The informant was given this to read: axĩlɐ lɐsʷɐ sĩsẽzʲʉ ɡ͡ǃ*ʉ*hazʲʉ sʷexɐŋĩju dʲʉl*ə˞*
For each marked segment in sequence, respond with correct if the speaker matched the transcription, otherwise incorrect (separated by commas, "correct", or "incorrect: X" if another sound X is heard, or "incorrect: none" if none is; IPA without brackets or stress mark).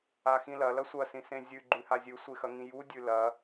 correct, incorrect: ɐ